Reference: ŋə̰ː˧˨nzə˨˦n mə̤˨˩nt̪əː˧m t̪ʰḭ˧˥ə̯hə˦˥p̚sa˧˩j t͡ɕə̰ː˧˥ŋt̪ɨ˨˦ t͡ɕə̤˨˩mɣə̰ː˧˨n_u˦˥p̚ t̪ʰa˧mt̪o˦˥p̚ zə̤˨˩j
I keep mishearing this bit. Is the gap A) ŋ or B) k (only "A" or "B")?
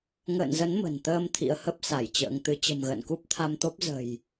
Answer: B